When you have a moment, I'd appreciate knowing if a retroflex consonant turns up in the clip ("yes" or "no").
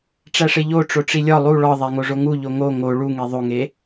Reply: yes